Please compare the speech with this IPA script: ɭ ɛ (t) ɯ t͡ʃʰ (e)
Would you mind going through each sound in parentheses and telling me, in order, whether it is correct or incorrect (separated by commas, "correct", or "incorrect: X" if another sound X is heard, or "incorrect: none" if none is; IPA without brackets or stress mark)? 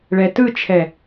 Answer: correct, incorrect: ɛ